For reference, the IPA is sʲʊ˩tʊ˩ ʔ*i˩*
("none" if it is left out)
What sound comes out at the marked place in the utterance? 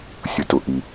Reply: i˩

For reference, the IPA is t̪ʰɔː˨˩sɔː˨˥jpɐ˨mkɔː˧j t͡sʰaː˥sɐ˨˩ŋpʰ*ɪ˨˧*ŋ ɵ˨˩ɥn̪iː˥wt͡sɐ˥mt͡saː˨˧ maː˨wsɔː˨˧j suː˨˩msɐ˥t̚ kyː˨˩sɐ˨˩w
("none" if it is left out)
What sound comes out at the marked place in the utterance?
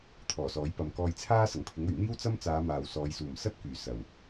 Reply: ɪ˨˥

